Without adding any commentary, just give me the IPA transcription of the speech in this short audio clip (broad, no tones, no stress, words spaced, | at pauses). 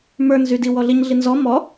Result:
mə˞nzydi wɔɮiɲɮinzɔ mɔ